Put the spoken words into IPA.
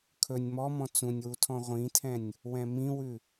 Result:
kʰ ɵ nʲ m ɔ m ɔ̃ t͡s ũ nʲ w u tʰ ɔ̃ ʁʷ ĩ tʰ ɛ̃ nʲ | w ɛ̃ m ĩ w ʉ

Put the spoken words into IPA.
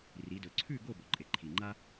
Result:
r i˩˧ d ɵ˩˧ ǀʰ ʉ˥˨ ɡ o˥˨ b ɵ˩˧ ǃʼ e˩ ǃʰ i˩ ŋ͡ǃ a˥

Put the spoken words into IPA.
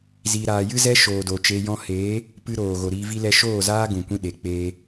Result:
z i˨ ɾ aː˨ j ɨ˦ z ɛ˦ ʃ oː˨ d o˨ t͡ʃ e˧ j ɔ̃˦ h eː˨˦ | p ɨ˧ ɾ oː˨ ɣ o˨ ɾ iː˧ v i˧ l ɛ˧ ʃ oː˦˨ z aː˦ ɡ ũ˨ kʷ ĩ˧ ɗ e˨ k͡p eː˧

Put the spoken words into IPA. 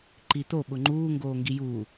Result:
ǃ i t̪ o ɓ ʊ ŋ͡ǃ uː ŋ ɡ oː ŋ ɡ i j uː

